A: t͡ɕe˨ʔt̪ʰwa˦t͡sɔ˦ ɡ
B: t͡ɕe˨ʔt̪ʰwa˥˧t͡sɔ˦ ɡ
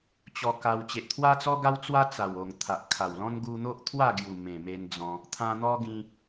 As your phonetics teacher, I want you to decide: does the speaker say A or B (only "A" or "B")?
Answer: A